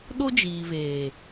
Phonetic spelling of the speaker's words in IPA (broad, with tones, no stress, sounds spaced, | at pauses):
ɗ o˦ d͡ʒ iː˨ β eː˨